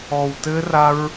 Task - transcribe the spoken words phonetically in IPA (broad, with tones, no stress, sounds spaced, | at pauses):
ɔ˧ w t ɘ˦ r a˦ ɹ